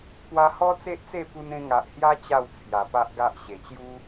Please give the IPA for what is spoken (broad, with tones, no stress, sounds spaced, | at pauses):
p w a˧ h ɔ˦ t͡s e˦ ʔ t͡s e˥˧ p u˧ n ẽ˧ ŋ a˨ ʔ h j a˦ t͡ɕ a˥˧ w t͡sʰ j a˨˩ p a˦ ʔ ɡ a˦ ʔ ɕ e˨˩ t͡ɕ j u˦